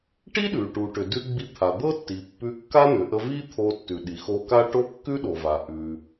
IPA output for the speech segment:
ʈ i˥ ɗ ʉ˩ ʈ u˩ ʈ ʏ˩ d ʉ˧ ɡ͡b i˧ t̪ʰ a˩ d̪ ɤ˥ tː i˩ pː ʉ˧ kː a˥ n̪ ʏ˩ ʔ ə˧ v i˥ t̪ʰ o˧ tː ʉ˩ ɗ i˩ x o˧ k a˥ ʈ o˥ kː ʉ˥ ɗ o˩ v a˩ ʔ ʉ˩

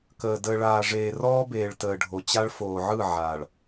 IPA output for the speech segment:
k əː˨ d əː˨ ɭ aː˨ ʐ eː˨ r ɔː˦ b eː˨ ɭ t əː˨ ɖʱ o˨ t͡ɕ a˦ ɭ f oː˨ ʕ ɯ˦˨ ʕ aː˨ ɭ

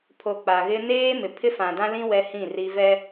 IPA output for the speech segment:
pʰ o˨ k͡p a˨ ɣ ɪ˦ n eː˦ m ɪ˨ pʰ ɪ˦ f ã˨ d ã˦ l ĩ˦ w ɛ˦ h ĩ˦˨ r i˦ v ɛ˦

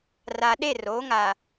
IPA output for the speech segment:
r a˨ ɗ e˦˨ r oː˨˦ ŋ a˨

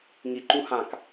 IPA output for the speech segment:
ŋ i ǃ u h ã k

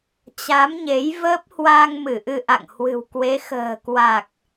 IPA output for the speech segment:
t͡ɕ a˨˦ m ɲ e˨˦ j v əː˦˥ p̚ h w a˧ ŋ m ɨ˧˩ ʔ ɨ˧ ʔ a̰˧˨ ŋ h w ɨ̤˨˩ w k w e˨˦ x ə̤ː˨˩ k w a˨˩ k̚

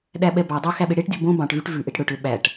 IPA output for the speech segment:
ɗ æ ɓ ɛ b ɑ dˤ ø x æ ɓ e ɽ e ʈ dʲ ɔ b õ b ɑ̃ ʈ v y ʈ v ʉ ʔ e ʈ ɽ ɵ ʈ ø ɓ æ ʈ

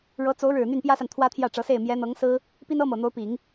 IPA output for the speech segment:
ɻ ɤ˧˥ t͡s o˧˥ ʊ̯ ɻ ɻ̩˨˩ n̪ y˥˩ n p j ä˥ s a˨ n t̪ʰ w ä˥ t̪ʰ j ä˥˩ ʈ͡ʂ ɤ˧˥ s e˥˩ ɪ̯ m j ɛ˧˥ n̪ ɤ˧˥ ŋ s ɹ̩˥ | p i˥ n ɤ˥ m ɤ˨˩ n̪ o˧˥ ʊ̯ p i˨˩˦ ŋ

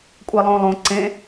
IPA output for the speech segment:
kʷʼ e lˠ õ lˠ õ ǀ ẽ

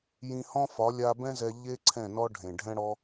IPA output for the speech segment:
j ĩ˧ h ɔ̃˦ f ɒ˨˦ lʲ a˧ b ɛ̃˦ z ɛ˧ ʎ e˦ ǀʰ ɛ̃˦˨ n ɔ˦ ɖʱ ẽ˨ ɖʱ ɛ̃˦ ɽ ɔ˦

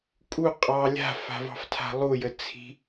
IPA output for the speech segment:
kʼ u qʼ ɑ lʲ a̤ f a̤ v ɑ̤ f tʰ a̤ lˠ u j ə t͡sʰ i̤

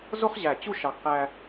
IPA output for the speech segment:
z o˥ χ ʑ æ˧˩ t͡ɕ u˥˧ ʃ ɑ˧ ɡ q æ˥

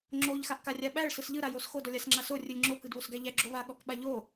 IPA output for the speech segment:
ŋ͡ǁ o ʎ x a ʔ k a rʲ a ɓ æ ɭ s ɯ s ʎ ɯ ɾ a j o s x o d ɔ lʲ a s ŋ͡ǁ a s o rʲ ɯ lʲ ŋ͡ǁ o k ɯ d β o s ɡ æ ʎ æ ɡ͡ǁ o β a ɠ ɔ k ɓ a ʎ o

